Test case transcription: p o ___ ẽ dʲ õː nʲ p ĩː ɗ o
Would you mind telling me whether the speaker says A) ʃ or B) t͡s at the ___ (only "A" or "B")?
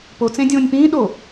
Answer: B